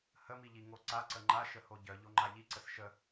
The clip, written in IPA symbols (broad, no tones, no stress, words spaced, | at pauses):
həmiʎiŋo ǀaǀə ŋ͡ǃaʃəho ɟœʎoŋ͡ǃa ʎiǀəs ʃə